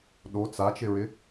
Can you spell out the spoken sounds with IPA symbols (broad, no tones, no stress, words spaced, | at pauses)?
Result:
ɗo t͡sat͡ʃɪɹɪ